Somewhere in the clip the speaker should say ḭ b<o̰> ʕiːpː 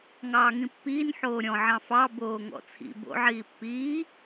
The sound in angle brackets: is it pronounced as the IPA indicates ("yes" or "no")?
yes